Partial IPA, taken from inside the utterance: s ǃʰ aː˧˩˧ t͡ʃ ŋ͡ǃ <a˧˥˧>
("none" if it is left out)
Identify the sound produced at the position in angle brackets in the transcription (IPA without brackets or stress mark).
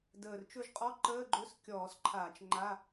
a˧˥˧